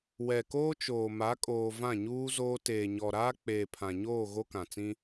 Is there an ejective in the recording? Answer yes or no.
yes